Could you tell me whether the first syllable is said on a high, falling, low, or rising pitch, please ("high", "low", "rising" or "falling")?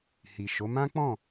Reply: low